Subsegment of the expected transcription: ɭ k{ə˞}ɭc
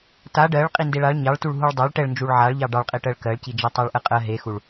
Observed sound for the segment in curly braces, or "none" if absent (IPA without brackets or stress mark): ɜ